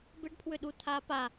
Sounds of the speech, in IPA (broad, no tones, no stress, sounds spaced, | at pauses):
b ɪ ɖ pʰ w ʏ ɗ u tʰ a p a